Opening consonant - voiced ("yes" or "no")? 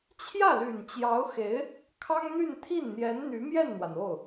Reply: no